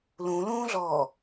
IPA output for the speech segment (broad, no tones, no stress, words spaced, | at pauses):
lũlũːɮɔː